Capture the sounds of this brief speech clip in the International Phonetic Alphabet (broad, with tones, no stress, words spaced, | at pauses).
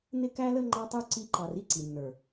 nɪ˦kæ˦lə˦ ŋ͡ǃɑ˧tˤu˧ ǀi˧ǃɑ˨r i˦ǀi˨nːə˞˨